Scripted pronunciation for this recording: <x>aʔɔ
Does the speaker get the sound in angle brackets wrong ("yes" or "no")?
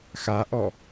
no